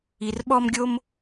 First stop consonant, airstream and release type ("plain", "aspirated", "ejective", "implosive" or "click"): implosive